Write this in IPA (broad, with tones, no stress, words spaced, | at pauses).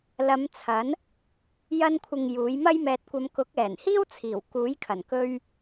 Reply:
lɐ˨˧m t͡sʰɐ˨˥n | jɐ˧nkʷʰɪ˨ŋ juː˨˥j mɐ˥jmɛː˧t̚kʷɐ˧m kʊ˨˥k̚ɛː˨˩nhiː˥wt͡sʰiː˨˩w kuː˨˥jkʰɐ˨˩n kɵ˧ɥ